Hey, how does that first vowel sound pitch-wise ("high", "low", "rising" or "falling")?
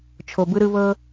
low